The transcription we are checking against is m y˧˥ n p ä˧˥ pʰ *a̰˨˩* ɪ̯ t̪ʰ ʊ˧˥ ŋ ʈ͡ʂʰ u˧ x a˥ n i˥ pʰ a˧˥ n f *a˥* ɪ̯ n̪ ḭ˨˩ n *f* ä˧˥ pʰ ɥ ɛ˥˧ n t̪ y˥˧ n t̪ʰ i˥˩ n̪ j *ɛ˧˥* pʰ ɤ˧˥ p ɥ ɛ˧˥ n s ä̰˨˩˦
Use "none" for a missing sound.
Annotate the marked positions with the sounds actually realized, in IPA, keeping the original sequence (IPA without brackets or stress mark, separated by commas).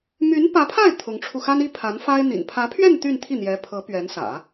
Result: a˥˩, a˥, pʰ, ɛ˧˥